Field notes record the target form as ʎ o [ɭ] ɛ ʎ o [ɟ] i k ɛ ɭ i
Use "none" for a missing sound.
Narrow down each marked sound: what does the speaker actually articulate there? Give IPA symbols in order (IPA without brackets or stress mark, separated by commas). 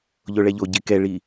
ɭ, ɟ